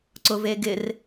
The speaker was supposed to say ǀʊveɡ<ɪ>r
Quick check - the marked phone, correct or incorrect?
correct